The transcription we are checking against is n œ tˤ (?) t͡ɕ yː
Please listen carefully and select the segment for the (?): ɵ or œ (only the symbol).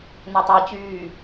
œ